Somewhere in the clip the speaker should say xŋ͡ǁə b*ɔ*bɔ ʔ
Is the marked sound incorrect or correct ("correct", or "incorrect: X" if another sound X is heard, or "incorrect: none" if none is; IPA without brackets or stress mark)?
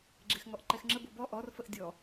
incorrect: o